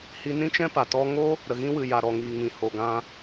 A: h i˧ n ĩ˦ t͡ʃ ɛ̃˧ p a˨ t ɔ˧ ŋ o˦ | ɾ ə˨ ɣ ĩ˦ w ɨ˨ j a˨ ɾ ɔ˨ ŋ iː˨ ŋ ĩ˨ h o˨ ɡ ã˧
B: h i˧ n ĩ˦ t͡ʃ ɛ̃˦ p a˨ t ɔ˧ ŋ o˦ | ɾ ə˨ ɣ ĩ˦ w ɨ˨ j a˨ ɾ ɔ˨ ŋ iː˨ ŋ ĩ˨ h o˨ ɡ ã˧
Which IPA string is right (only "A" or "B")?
B